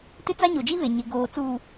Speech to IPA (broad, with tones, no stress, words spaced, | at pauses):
tɪ˦t͡sa˦ɲo˨d͡ʒi˦ βe˨ ɲɪ˨ɡoː˨t͡suː˨